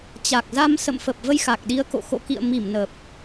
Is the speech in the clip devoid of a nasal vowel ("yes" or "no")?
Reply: yes